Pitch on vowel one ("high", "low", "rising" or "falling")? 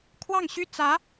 falling